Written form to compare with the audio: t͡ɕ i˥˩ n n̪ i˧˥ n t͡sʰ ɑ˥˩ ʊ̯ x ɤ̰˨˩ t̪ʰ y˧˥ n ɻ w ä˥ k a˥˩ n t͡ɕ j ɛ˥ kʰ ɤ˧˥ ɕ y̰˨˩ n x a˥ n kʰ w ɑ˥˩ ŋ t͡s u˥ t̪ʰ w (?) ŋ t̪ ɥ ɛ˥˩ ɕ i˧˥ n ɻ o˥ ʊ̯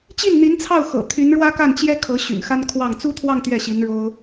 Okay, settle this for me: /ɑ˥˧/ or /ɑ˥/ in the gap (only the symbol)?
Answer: ɑ˥˧